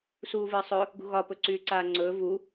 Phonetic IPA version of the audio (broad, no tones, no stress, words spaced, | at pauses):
suːvɨːsˤɵ | ɡṳɣɒ pɵǀyːǀaːŋ͡ǀɵː vu